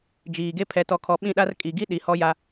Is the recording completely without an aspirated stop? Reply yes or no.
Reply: no